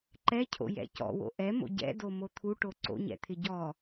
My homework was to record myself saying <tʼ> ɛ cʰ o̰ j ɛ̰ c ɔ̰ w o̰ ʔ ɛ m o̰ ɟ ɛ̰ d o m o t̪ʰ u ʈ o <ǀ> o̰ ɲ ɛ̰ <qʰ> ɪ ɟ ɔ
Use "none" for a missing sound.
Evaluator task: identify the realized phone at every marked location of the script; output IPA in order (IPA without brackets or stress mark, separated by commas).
ǃ, ǀ, t̪ʰ